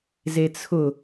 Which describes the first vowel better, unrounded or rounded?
unrounded